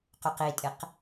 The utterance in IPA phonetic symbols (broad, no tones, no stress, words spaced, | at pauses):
quqitʼɪq